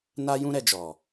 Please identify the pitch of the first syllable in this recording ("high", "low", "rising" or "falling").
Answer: high